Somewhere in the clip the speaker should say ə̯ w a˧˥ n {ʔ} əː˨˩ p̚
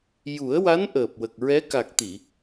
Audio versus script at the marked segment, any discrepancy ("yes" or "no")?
no